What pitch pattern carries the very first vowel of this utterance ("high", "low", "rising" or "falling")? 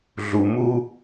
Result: low